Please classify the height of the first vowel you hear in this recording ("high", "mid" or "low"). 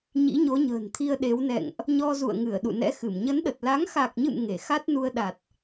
high